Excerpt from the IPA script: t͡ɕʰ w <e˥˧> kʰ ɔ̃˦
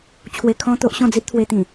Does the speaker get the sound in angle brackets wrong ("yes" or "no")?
yes